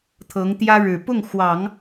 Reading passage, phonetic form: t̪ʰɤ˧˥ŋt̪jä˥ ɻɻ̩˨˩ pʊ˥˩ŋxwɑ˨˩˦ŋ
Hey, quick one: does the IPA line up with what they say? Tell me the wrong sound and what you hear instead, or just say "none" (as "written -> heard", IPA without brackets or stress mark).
none